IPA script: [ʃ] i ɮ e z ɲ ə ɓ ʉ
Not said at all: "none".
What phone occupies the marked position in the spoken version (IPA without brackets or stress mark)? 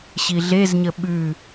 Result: ɕ